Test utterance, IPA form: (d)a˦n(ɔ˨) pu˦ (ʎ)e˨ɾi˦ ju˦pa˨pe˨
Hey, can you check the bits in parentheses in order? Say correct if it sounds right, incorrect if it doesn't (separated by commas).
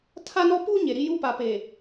incorrect, incorrect, incorrect